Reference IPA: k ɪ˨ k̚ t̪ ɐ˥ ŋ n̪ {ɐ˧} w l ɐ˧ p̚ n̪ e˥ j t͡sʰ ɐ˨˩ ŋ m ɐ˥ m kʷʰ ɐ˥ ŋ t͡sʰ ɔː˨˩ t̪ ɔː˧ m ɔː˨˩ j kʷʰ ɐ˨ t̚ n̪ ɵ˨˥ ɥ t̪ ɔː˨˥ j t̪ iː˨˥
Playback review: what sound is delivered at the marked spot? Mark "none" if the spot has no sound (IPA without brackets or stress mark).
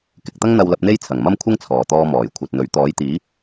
ɐ˧